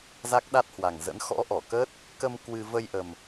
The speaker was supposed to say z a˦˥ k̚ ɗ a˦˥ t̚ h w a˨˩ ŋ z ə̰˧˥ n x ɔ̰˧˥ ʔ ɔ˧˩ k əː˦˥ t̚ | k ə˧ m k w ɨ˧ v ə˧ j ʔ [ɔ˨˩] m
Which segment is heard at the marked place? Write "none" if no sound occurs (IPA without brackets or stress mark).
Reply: ə˨˩